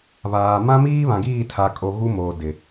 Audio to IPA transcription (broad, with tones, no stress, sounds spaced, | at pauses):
β aː˨ m ã˦ m iː˦ β ã˨ ɡ iː˦˨ tʰ a˨ kʼ o˨ ɣ u˦ m oː˨ d ɪ˨